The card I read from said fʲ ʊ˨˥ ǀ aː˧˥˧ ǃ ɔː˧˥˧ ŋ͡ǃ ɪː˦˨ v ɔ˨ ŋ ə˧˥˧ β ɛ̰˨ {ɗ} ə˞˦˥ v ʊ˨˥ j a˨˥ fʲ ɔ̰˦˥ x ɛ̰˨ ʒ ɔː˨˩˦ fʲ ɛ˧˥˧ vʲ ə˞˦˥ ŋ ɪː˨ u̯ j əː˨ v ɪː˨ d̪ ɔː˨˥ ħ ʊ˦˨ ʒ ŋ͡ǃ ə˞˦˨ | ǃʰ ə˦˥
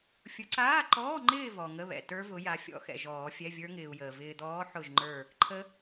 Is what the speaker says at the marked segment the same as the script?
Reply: no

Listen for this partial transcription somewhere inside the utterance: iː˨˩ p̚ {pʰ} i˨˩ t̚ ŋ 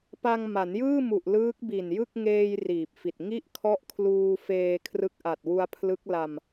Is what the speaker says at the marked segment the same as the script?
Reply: no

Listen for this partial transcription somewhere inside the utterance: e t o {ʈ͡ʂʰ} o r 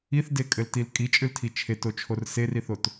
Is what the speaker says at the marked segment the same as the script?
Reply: no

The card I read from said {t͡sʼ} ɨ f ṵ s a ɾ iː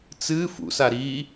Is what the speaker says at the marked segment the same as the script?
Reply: no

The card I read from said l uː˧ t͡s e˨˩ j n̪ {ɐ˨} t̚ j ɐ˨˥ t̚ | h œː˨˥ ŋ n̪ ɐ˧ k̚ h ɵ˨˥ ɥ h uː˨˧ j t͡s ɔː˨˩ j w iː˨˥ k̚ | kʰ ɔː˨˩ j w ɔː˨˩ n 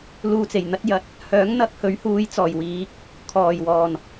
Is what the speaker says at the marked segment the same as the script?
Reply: no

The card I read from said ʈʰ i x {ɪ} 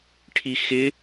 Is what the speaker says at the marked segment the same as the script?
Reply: yes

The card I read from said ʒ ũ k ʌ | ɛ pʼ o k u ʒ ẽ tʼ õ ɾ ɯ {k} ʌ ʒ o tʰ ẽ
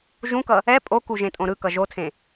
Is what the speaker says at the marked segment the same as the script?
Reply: yes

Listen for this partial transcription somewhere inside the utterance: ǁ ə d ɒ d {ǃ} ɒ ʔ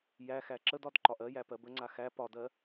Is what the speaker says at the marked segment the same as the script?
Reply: yes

